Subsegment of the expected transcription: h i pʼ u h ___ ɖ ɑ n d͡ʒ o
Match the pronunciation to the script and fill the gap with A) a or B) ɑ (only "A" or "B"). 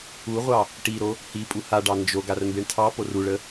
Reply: A